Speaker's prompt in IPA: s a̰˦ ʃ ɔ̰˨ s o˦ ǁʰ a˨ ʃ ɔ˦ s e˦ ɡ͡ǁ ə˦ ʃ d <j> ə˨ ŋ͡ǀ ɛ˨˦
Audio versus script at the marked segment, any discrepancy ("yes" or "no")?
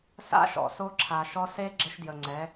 no